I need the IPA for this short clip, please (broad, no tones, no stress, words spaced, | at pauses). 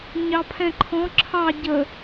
ɲɑpʰɛ̃ǃʰɔ̃ ǁʰɑ ɟə